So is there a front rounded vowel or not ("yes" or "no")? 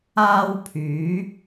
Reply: yes